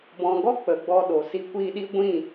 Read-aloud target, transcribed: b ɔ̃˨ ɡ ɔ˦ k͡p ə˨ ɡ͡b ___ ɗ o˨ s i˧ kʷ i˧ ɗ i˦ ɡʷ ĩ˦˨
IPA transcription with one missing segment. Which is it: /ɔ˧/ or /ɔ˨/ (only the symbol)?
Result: ɔ˧